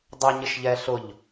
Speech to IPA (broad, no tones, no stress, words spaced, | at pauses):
dˤʊɲɪʃʎɛ ɬʊʎ